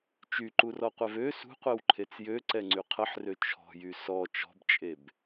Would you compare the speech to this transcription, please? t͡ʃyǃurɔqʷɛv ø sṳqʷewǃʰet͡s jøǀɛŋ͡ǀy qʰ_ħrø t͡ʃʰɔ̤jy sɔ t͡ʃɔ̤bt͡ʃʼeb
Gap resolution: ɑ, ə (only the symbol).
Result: ə